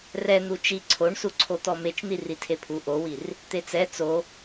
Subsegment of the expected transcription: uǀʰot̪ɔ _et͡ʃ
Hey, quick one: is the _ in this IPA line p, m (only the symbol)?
m